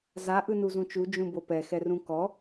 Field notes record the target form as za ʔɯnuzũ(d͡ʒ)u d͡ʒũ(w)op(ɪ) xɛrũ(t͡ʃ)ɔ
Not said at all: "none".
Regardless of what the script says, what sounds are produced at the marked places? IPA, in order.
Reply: t͡ʃ, b, ɛ, k

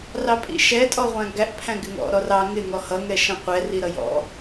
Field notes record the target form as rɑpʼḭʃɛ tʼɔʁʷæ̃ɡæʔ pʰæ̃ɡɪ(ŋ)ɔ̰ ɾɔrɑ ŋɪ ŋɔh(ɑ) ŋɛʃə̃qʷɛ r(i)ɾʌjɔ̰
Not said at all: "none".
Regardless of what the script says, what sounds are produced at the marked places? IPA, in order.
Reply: ŋ, ʌ, i

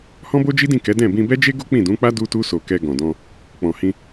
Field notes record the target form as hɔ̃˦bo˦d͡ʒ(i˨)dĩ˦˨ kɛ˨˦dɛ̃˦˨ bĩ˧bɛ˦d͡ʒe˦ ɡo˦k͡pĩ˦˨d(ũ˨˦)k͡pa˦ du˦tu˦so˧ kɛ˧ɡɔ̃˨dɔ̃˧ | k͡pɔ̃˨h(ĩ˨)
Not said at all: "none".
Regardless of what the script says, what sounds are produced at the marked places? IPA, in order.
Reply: i˦, ũ˨˦, ĩ˧

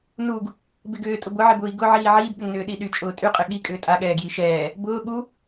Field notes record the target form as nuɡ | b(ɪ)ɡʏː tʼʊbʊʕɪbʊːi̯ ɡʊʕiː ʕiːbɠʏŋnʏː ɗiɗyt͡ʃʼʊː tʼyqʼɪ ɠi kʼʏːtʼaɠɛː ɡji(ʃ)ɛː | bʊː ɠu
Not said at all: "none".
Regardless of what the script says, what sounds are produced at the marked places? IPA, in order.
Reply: ɪ, ʃ

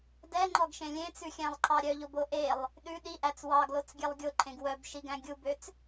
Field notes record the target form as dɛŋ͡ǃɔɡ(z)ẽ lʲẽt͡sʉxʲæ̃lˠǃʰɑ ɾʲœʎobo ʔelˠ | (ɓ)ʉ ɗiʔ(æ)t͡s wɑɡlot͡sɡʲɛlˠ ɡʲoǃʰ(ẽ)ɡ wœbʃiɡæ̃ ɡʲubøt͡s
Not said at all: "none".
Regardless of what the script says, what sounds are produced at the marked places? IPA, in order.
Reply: ʃ, ɗ, æ, ẽ

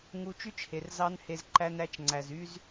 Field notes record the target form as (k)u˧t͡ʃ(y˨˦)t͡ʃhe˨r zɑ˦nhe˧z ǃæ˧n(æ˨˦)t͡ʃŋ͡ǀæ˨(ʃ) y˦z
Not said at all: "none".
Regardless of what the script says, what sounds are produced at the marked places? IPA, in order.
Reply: ŋ, y˦, æ˨˦, z

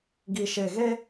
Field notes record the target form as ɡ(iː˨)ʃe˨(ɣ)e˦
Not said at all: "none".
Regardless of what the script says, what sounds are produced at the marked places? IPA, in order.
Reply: i˨, ɣ

